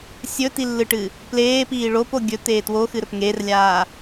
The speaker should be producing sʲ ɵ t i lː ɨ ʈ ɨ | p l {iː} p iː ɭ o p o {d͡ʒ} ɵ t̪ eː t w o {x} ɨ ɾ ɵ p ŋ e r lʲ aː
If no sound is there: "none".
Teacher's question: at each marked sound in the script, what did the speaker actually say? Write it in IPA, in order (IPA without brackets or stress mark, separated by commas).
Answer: eː, ɡʲ, x